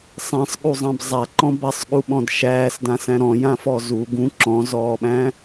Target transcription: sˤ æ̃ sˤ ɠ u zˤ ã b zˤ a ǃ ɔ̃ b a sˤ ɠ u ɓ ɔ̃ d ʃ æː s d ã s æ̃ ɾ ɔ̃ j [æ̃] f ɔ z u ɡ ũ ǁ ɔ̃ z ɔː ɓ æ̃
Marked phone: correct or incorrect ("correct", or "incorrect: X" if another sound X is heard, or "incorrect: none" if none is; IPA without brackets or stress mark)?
incorrect: ã